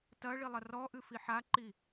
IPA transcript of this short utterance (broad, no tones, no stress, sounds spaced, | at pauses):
t ɐ ɭ i lˠ ɐ r ɔ ʔ ɨ f i ħ a ǃ i